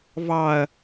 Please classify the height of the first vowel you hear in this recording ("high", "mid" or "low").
low